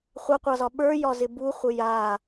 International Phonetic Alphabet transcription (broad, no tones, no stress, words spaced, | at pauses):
χʷaqʷɑzɒ ɓə˞jɒzɪ buχʷə ja